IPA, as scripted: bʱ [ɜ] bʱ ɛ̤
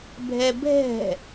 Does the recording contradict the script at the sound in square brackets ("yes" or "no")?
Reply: yes